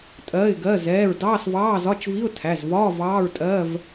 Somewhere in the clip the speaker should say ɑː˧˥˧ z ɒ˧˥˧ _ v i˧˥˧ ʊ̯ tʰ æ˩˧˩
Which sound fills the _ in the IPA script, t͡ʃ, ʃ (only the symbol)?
t͡ʃ